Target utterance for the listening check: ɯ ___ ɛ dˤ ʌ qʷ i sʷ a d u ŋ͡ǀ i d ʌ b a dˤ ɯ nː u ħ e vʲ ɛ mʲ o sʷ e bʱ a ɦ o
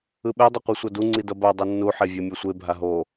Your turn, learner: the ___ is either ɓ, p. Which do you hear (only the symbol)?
ɓ